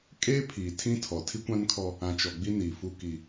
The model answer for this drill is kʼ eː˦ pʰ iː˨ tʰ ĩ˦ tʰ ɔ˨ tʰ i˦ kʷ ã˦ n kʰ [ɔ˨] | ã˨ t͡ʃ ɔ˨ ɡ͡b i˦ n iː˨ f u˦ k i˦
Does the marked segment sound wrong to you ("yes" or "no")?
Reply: yes